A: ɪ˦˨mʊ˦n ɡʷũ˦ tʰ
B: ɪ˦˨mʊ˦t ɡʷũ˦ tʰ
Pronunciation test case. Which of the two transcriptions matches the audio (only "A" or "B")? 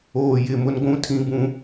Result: A